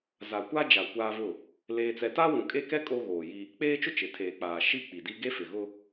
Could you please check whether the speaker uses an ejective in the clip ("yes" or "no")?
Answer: yes